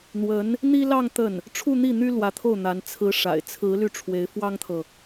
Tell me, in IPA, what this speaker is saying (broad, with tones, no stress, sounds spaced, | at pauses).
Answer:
n̪ w ə˧˥ n | n̪ i˥ l ɑ˥˧ ŋ t̪ ə˥˩ n | ʈ͡ʂʰ u˥˧ n̪ i˥˩ n̪ y˥ l w ä˧˥ t̪ʰ o˥˩ ʊ̯ n̪ a˧˥ n t͡sʰ ɹ̩˧˥ ʂ a̰˨˩ ɪ̯ t͡sʰ ɹ̩˧˥ l y˥˩ ʈ͡ʂʰ w e˧˥ ɪ̯ f w ɑ˥ ŋ t̪ʰ ɤ˨